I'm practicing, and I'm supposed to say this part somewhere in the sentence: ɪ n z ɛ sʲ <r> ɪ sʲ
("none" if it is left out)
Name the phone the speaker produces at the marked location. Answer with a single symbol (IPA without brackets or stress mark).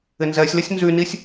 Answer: l